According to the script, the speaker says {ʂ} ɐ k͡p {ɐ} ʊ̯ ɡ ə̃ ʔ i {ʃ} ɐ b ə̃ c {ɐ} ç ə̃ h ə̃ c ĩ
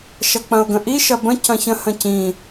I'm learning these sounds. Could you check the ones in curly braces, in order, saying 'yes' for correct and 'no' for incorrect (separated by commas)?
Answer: no, no, yes, no